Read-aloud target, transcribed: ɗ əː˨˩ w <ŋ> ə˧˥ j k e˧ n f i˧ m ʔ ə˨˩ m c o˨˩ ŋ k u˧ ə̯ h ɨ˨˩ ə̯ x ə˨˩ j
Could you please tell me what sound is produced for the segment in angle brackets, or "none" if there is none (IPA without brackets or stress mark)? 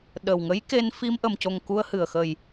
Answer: ŋ